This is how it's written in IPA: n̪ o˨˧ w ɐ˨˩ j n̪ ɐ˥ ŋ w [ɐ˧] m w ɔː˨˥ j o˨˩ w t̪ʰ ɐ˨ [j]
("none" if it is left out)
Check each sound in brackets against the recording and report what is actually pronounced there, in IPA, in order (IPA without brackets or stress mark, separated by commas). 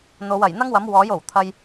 ɐ˨˥, j